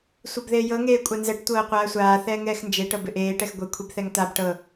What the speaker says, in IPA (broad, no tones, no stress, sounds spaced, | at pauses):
sʷ ɤ b ð eː j ɤ ŋ eː kʷʼ a n z ɛ ʈ tʷ ɤː qʷ aː sʷ aː θ ɛː ŋ ɛː x n d͡ʒ e ʈ ɤ b ɪ ʔ eː ʈ ɛ x ɡʷ ɛ kʷʰ i b θ ɛ ŋ t̪ a b ʈ ɤ